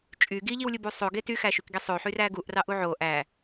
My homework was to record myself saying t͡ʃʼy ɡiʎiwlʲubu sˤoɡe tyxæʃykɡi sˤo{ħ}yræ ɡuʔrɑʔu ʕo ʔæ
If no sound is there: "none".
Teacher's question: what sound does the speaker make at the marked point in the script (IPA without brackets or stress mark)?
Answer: ħ